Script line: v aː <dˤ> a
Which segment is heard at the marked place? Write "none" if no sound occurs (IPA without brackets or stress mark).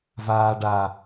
ɖ